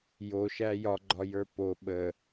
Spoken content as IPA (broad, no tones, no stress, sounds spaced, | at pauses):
j o ʃ æ j ɒ ɡ͡ǃ ɒ j ə˞ p o ɓ ə